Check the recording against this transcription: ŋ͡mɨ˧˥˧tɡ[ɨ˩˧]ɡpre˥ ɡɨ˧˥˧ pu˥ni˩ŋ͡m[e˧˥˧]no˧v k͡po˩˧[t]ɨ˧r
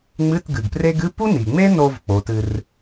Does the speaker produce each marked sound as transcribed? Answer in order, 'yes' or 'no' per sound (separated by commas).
no, no, yes